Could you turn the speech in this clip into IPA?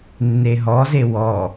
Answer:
nːeɦɔze wɔ

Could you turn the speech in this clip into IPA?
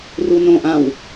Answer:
runõ ʔãw

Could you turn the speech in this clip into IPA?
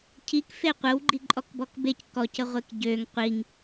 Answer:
cʰikfe qʷəw ɡ͡ǃiǃʼɔkbɔkbec kɔcə ʁʷekɟøŋ qʷiŋ

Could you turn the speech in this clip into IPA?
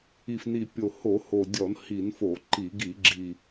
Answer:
i˨˩fni˨˩pʲo˨˩ ho˧˩˧ho˨˩dʲɔ˧˩˧n hi˧˩˧nfo˧˩˧ ǃi˧˩˧ ɡi˧˩˧ɡ͡ǁi˨˩

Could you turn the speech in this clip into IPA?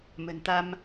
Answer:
mə̤˨˩nt̪a˧m

